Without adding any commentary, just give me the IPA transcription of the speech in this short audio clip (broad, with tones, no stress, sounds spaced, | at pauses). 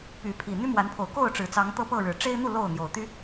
p y˨˦ pʰ i˨˩ n̪ y˦ m w a˨˦ n pʰ o˨˩ ʊ̯ k o˥˨ ʊ̯ ʈ͡ʂ ɻ̩˨˩ t͡s ɑ˨˦ ŋ t̪ ɤ˦ p ɤ˥˨ ɻ ɻ̩˨˩ ʈ͡ʂ e˦ ɪ̯ n̪ u˥˨ l o˥˨ ʊ̯ n̪ j o˨˩ ʊ̯ t̪ y˦